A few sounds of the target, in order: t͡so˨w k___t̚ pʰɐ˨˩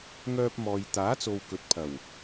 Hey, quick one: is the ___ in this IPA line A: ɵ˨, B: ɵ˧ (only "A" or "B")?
A